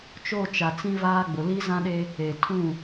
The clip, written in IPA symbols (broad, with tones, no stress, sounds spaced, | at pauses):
t͡ʃ o˦˨ t͡ʃ a˨ t͡s ĩ˦ v aː˦ ɡ͡b ʊ˨ l i˦ z ã˦ ɗ e˦ | e˨ tʰ ũ˦˨